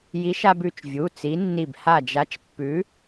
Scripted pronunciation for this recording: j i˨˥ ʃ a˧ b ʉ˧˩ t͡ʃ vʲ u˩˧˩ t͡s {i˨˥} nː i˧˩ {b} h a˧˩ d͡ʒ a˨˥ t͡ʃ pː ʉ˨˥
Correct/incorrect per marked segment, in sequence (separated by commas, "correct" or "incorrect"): correct, correct